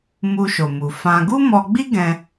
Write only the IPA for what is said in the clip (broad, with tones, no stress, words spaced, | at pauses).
mu˧ʃo˨mu˨fã˧ ɡu˦mɔ˧ɡ͡bi˦ ɡɛ̃˧